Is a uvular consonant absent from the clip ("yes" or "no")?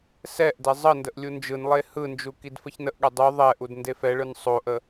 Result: yes